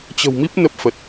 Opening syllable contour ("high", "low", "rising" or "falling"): low